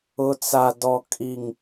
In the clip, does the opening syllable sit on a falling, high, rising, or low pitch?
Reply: low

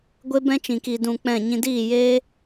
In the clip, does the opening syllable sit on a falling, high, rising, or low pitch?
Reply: high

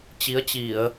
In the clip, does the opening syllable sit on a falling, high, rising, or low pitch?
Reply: rising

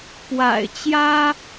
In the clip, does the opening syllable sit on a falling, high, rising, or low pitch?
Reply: low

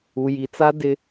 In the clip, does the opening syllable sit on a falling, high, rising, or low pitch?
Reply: low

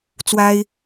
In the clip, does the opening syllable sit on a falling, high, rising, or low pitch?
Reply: high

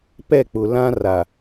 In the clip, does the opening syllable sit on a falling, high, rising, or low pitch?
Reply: falling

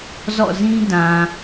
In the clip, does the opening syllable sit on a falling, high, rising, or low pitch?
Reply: falling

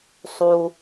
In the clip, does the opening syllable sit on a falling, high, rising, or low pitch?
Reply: low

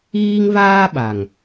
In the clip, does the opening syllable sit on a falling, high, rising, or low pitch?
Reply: high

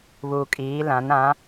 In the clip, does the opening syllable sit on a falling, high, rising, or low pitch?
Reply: low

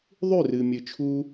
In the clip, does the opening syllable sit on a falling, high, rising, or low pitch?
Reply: falling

